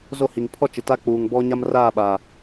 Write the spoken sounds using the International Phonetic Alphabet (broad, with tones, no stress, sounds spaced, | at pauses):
z o˦˨ h i˨ ŋ pʰ ɔ˦ t͡ʃ ɪ˨ t a˦ k͡p uː˨ ŋ b ɔ˦ ɲ a˦ m r aː˦˨ ɓ a˨